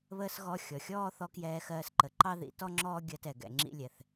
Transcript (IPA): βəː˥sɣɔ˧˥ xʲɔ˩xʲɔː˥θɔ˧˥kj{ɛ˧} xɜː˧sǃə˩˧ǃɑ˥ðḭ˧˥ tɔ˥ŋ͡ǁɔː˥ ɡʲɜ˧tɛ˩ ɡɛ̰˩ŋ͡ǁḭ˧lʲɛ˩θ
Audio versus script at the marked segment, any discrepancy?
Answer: yes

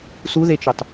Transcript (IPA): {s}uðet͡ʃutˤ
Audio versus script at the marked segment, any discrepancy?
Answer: no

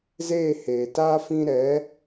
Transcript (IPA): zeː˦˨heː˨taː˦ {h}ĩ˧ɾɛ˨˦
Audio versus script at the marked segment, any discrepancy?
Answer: yes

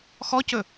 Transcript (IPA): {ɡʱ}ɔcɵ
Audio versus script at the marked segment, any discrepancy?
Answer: yes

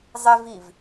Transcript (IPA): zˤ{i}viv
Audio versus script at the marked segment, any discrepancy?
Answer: yes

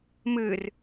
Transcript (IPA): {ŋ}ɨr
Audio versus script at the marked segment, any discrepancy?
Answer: yes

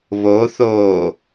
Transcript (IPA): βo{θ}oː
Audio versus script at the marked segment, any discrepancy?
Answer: no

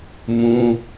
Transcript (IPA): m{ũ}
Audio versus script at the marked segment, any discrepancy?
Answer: no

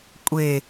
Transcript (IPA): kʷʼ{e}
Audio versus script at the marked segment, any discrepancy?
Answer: no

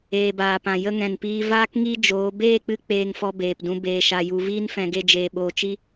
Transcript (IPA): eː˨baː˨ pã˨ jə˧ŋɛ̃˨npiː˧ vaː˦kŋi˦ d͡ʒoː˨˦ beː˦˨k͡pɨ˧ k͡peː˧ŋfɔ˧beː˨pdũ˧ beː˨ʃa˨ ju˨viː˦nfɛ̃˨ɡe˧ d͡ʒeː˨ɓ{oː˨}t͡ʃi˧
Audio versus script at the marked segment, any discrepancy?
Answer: no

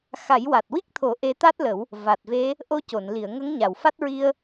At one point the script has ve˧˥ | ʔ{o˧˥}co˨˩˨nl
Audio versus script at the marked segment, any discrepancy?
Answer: yes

